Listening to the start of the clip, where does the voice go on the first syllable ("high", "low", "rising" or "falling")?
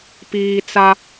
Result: low